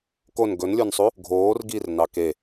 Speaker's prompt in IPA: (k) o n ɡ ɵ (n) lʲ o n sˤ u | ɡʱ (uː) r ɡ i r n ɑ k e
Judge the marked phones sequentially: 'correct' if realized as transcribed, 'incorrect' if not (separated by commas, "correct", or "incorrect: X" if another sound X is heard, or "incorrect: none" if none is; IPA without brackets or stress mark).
correct, correct, incorrect: oː